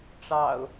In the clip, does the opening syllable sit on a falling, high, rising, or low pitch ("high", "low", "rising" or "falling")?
low